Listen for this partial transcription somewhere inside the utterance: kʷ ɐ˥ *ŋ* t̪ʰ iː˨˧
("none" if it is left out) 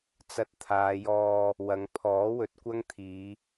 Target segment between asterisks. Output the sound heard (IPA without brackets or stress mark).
ŋ